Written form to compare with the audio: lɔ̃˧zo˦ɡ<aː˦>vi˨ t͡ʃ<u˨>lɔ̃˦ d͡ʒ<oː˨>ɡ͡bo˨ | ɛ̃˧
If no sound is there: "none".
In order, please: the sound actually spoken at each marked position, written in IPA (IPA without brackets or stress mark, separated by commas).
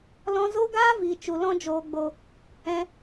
aː˦, u˨, oː˨